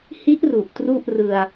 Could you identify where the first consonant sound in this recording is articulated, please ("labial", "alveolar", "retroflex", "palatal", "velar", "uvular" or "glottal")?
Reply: glottal